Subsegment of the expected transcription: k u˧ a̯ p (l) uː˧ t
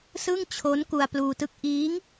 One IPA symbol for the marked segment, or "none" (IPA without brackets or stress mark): l